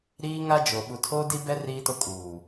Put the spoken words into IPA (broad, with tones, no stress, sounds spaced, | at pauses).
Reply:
ɾ iː˦ ŋ a˦ d͡ʒ o˨ ɓ u˨ tʰ o˦ d i˦ b ɛ˦ r iː˦ t ʊ˦ kʼ uː˨